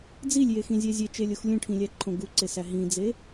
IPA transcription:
d͡z i lʲ j e x ĩ zʲ æ zʲ e t͡ʃ e lʲ o x lʲ ũ ʈʰ ĩ lʲ æ ǃʰ õ ɡ u ǀ e s æ ɦ ĩ d͡z e

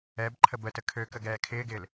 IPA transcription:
ɛ b ǃʰ ə b ə t ə kʰ ø k ə ɡ ɛː kʰ ɪː ɡ ɪː l

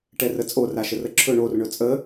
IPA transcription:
ʈ ɛ r ə t͡sʼ o r a ʃ ə r ə ǁʰ ɵ ɳ o r ɳ ɵ t͡sʼ ə

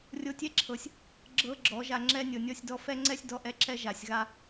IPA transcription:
rʲ o˧ tʲ ɛ˦ ǁʰ ɤ˨ sʲ | ɡ͡ǁ ɤ˦ ɡ͡ǁ ɔ˨˦ ʒ a˧ ŋ͡ǁ ɛ˧ nʲ ɤ˨ nʲ ɔ˦ sʲ d ɔ˦ f ɛ˦ ŋ͡ǀ ɛ˦ sʲ d ɔ˦ ʔ ɛ˦ ǁ ɛ˦ ʒ a˨ sʲ ɣ a˧

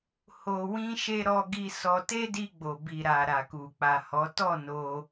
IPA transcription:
h o˧ w ĩ˦ ʃ e˦ ɾ ɔ˦ ɡ i˦ s ɔ˧ t e˦ d i˧ ɡ͡b o˨ b i˨ ɾ a˨ ɾ a˨ k u˨ k͡p a˨ h ɔ˨˦ t ɔ˦˨ n o˧

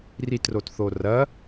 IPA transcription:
r i t r o t θ o r ɐ

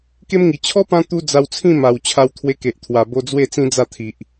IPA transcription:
k e˦ m ŋ i˨˩ t͡ɕʰ ɔ˦ p ã˧ t̪ u˧ d͡z a˧ w t͡sʰ ĩ˥˧ m a˨˩ w t͡ɕʰ a˧ w t̪ʰ w e˧ k e˨ ʔ t̪ʰ w a˨˩ b o˧ d͡z w e˥˧ t͡s ĩ˦ d͡z a˥˧ t̪ʰ i˨ ʔ

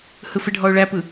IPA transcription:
h ɯ f ɪ ɖʱ ɔ ʊ̯ ɭ æ p ɯ

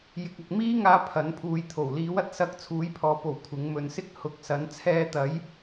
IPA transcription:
j ɪ˧ k̚ ɐ˧ k̚ m iː˥ ŋ aː˧ pʰ ɐ˨˥ n pʰ uː˨˧ j t̪ʰ o˨˩ w l iː˨˥ w ɐ˨ t̚ s ɐ˧ k̚ t͡sʰ uː˨˥ j pʰ ɔː˨ p o˨˩ w kʷʰ ɪ˨˥ ŋ m ɵ˨ n s ɪ˥ k̚ h ʊ˨˥ k̚ s ɐ˨˥ n t͡sʰ ɛː˧ t̪ ɐ˨˥ j

